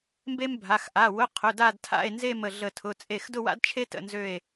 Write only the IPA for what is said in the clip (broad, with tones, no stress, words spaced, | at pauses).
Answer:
mbe˥mbʱa˩˧˩x ʔa˩˧˩wʊ˧˥˧qʰʊ˩˧˩ da˥˧dtʰa̰˥˧e̯nze˥˧mə˧˩ ɮə˧˩tʰʊ˩˧˩ t͡sʼe˧˩xdʊ˥˧wa̰˥d t͡ʃʰe˥tə̰˧˩nzø˧˩e̯